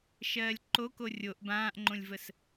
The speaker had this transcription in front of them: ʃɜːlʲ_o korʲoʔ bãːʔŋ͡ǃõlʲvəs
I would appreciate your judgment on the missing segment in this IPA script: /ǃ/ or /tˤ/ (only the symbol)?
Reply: ǃ